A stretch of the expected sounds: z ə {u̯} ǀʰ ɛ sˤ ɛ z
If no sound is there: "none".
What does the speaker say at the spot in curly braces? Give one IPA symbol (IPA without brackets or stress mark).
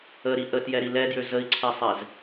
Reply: i̯